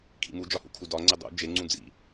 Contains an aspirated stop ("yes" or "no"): yes